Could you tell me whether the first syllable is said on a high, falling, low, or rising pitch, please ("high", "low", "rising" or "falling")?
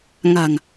low